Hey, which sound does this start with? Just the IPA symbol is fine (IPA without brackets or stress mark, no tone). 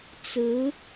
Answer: t͡s